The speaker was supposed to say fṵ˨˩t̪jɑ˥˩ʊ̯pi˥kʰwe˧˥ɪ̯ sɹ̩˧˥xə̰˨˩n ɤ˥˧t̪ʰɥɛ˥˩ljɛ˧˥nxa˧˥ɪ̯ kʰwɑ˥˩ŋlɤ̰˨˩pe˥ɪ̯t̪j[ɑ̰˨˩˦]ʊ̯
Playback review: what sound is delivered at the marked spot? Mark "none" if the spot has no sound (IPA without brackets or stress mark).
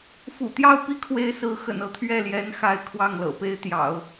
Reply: ɑ̰˨˩˦